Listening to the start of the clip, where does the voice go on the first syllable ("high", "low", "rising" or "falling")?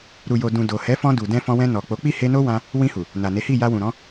low